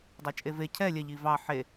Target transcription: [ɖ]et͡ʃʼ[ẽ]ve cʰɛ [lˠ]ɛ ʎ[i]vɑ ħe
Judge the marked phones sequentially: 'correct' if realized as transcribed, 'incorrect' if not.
incorrect, incorrect, incorrect, correct

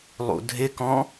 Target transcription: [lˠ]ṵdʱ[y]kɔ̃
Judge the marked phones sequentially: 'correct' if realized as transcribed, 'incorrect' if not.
correct, incorrect

